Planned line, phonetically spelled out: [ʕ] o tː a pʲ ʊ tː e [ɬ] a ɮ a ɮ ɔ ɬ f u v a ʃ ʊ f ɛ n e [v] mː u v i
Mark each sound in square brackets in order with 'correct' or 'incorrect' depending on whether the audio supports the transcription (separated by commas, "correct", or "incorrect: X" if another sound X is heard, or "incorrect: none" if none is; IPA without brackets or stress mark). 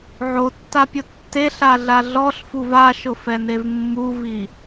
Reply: correct, correct, correct